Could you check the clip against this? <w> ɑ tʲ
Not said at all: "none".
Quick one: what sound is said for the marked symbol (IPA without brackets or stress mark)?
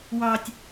w